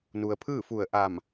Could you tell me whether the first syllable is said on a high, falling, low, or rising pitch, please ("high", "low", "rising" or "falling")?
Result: low